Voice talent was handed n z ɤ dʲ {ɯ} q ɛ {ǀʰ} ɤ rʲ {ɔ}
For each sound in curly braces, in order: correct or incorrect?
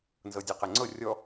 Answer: correct, incorrect, correct

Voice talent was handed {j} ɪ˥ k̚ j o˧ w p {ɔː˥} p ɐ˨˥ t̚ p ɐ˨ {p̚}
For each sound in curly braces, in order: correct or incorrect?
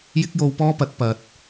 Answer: correct, correct, incorrect

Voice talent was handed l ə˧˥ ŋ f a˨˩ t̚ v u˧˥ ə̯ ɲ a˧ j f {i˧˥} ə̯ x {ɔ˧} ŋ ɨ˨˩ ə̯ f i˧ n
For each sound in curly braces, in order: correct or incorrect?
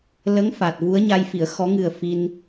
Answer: incorrect, incorrect

